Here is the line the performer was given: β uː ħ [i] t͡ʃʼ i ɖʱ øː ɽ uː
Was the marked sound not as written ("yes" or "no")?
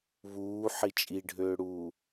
no